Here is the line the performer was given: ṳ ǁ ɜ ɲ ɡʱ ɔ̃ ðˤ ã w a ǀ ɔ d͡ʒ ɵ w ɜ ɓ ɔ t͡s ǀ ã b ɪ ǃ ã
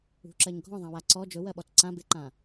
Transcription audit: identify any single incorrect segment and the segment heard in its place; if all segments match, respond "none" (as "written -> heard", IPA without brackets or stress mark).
none